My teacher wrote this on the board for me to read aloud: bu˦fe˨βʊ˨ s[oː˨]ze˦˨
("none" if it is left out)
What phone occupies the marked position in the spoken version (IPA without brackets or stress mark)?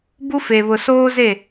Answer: oː˦